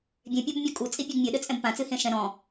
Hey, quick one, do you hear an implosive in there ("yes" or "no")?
yes